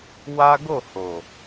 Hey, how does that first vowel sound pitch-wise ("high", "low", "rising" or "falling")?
high